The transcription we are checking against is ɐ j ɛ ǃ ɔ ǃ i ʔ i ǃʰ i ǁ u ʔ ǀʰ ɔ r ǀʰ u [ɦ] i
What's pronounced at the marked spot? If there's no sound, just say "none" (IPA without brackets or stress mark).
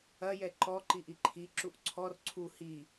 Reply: h